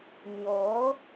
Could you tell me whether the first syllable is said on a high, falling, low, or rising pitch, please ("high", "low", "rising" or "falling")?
rising